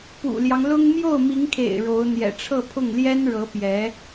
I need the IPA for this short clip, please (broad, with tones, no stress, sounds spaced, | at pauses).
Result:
p ṵ˨˩ l j ɑ˦ ŋ l ʊ˥ ŋ m j o˥˩ ʊ̯ m i˧˥ ŋ kʰ ḛ˨˩ ɪ̯ ɻ o˧˥ ʊ̯ n̪ j ɛ̰˨˩ ʈ͡ʂʰ ɤ˥˧ pʰ ʊ˥˩ ŋ l j ɛ˥ n ɻ ɤ˧˥ p j ɛ˧˥